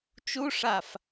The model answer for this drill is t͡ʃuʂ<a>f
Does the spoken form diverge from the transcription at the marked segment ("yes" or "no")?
no